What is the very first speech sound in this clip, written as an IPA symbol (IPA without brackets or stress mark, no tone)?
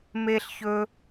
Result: m